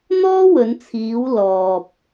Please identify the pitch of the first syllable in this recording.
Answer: high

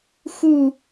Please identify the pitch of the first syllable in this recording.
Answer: falling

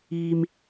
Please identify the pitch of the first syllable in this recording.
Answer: low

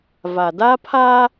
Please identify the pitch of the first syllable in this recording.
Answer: low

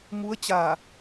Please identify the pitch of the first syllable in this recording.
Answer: rising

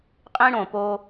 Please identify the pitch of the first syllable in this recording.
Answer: high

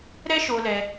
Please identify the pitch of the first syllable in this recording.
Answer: high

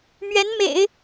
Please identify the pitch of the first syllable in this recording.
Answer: rising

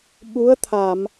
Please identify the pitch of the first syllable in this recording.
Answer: rising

